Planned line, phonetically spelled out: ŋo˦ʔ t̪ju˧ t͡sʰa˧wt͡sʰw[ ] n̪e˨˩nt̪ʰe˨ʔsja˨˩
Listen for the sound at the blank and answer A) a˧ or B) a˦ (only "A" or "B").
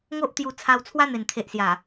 B